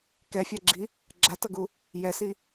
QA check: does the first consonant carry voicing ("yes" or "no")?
no